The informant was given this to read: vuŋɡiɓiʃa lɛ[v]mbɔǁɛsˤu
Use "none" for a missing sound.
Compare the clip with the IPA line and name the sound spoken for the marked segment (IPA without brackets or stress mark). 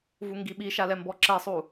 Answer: none